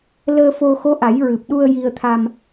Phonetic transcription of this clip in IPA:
l əː˧ f o˧ x o˧˥ ʔ a˨˩˦ j ɹ ɨ˨˩ p̚ ɗ u˧ ə̯ j i˧ ə̯ t̪ʰ a˧ m

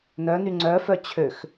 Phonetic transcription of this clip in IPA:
n œ n y ŋ͡ǀ œ f œ t͡ɕʰ ø x

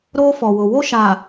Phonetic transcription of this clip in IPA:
ɾ oː˦ f ɔ˨ w ʊ˨ w o˦ ʃ a˨

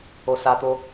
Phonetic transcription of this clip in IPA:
o s a t̪ o

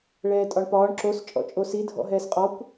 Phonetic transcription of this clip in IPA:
ɭ ɛː tʼ ɒ ɳ p ɒː ɳ ǁ o s t͡ʃʼ ɔ̰ t͡ʃʼ o s i dʱ ɔ̰ ɦ ɛː s qʼ ɒ kʷ

